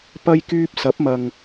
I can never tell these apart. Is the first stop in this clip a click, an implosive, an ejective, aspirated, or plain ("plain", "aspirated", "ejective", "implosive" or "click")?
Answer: plain